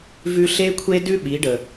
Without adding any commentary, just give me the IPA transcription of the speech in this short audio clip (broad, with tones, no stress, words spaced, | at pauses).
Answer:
vʉ˧ɬe˦kʷʰe˦dʉ˦ ɓi˨˦ ɖə˨